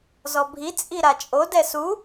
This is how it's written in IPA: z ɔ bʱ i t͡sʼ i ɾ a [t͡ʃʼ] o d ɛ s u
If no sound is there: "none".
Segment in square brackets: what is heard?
t͡ʃʼ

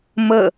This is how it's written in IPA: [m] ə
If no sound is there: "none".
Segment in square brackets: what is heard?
m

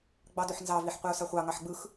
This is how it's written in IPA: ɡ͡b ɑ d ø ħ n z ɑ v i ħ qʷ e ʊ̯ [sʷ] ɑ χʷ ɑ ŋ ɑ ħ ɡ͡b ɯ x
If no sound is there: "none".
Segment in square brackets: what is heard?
s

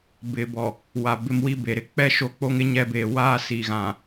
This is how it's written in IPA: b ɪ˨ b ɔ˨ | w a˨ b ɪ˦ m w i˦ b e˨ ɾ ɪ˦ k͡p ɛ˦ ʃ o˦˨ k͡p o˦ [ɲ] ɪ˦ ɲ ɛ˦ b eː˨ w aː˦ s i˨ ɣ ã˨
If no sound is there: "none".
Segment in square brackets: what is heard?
ŋ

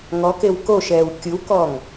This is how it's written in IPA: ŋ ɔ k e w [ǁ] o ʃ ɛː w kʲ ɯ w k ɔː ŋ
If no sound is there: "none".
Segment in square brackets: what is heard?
k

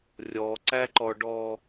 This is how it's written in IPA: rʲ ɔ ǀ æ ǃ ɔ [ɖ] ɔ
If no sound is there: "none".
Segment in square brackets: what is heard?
ɖ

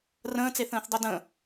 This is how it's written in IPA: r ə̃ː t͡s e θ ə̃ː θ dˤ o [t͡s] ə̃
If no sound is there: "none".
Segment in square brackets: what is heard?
d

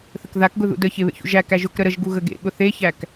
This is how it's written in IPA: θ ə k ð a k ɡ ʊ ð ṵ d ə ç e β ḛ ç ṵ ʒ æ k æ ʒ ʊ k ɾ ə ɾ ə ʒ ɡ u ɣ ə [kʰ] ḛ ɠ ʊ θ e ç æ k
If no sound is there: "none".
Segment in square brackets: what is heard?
ɡ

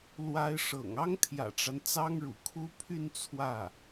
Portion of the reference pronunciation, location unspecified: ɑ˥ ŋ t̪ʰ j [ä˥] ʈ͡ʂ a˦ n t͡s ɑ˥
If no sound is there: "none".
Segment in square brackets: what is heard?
ä̰˨˩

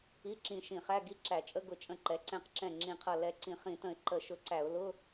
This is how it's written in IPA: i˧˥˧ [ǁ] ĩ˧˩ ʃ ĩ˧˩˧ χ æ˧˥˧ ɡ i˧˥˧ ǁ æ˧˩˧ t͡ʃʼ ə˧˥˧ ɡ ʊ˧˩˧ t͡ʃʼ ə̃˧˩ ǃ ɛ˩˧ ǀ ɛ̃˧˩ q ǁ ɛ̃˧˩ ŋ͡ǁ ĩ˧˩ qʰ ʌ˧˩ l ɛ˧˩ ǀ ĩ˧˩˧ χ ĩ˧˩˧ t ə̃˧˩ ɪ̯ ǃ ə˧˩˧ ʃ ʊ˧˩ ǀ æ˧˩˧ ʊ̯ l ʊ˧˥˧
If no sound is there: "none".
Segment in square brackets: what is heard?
ǁ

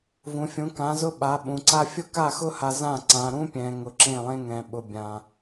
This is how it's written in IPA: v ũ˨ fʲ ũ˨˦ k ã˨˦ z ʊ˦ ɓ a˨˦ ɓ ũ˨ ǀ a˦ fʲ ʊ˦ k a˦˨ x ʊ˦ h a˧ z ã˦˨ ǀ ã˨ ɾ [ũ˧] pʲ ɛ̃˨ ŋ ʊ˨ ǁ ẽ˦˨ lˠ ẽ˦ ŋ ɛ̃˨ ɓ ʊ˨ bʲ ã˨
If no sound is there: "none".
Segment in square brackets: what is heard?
ũ˦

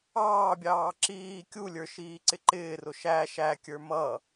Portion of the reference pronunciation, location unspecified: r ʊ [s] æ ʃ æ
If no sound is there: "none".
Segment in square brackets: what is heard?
ʃ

